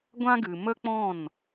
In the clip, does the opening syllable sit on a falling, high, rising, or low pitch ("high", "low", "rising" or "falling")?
high